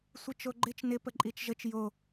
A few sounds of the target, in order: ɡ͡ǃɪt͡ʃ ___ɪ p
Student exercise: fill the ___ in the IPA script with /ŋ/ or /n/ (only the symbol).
n